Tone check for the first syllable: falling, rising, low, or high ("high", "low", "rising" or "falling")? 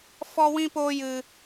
high